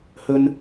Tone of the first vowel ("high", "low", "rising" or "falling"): high